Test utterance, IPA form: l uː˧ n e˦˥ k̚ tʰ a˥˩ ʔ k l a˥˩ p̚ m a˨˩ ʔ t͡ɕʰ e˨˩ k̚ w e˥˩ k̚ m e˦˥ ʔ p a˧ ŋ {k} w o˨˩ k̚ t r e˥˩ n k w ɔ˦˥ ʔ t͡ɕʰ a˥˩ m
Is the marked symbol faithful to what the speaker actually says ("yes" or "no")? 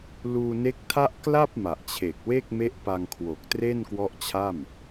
no